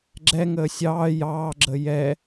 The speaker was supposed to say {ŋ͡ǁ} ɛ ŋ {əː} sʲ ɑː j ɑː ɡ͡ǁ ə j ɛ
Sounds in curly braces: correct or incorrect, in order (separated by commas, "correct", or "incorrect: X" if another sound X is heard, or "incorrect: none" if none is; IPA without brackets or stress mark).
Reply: incorrect: ɡ͡ǁ, correct